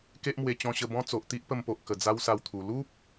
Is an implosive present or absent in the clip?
absent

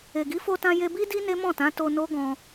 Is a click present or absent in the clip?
absent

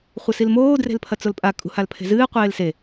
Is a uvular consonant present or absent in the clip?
present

